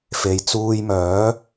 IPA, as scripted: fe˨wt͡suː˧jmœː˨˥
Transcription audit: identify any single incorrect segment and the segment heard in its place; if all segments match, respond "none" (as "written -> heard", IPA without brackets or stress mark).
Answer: w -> j